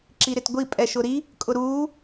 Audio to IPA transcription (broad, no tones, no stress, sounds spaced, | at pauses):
ǁ i ɾ ɪ t ɡʷ i pʼ ɛ ʃ ʊ ɾ i | kʼ ʊ ɾ uː